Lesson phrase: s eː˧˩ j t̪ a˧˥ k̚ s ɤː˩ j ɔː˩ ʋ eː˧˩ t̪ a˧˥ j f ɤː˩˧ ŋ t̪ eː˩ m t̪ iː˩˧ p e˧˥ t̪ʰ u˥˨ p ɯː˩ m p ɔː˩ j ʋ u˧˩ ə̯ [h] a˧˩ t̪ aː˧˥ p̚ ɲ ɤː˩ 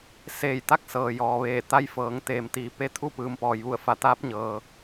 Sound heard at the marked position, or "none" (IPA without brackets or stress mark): f